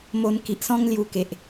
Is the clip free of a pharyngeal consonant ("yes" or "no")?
yes